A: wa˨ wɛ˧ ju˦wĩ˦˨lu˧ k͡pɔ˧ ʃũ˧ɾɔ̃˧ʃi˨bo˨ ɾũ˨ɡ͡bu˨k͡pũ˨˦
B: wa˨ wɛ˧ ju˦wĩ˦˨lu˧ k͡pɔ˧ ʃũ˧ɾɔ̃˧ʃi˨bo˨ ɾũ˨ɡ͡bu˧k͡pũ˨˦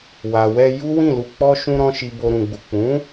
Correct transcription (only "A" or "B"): A